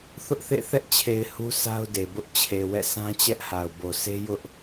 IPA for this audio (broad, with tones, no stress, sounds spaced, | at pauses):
θ ʊ˦ ʔ θ ḛ˦˨ θ ɛ˦ ʔ t͡ɕʰ e˨ ɪ̯ h u˦ sʰ a˦ ʊ̯ d e˨ b ʊ˦ ʔ t͡ɕʰ e˨ w ɛ̰˦˨ s ã˦ t͡ɕ ɛ˦ ʔ h a˨ ʊ̯ b o˨ s e˦ j ʊ˦ ʔ